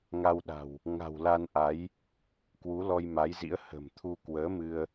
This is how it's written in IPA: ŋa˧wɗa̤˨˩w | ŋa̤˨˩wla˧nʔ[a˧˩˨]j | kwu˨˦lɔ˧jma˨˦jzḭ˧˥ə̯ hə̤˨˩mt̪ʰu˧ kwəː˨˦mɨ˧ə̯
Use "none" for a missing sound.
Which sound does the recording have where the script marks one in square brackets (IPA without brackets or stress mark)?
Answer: a˨˦